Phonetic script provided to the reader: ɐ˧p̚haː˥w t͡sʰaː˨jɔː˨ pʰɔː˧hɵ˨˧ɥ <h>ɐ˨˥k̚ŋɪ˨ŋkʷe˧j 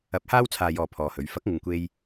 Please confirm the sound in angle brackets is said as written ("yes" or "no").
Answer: no